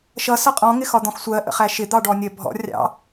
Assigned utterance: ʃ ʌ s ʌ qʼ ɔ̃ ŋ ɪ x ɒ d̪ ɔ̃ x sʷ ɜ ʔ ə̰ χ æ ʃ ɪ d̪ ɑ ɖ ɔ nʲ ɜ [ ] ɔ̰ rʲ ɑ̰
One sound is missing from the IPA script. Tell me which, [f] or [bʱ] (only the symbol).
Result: bʱ